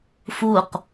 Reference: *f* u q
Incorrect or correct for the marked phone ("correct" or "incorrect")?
correct